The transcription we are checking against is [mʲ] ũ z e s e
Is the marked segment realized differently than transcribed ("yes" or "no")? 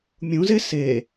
no